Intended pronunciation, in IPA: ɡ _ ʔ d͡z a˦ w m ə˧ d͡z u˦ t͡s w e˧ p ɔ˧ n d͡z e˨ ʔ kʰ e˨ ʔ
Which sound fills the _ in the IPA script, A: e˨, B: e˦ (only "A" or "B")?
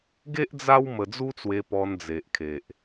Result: B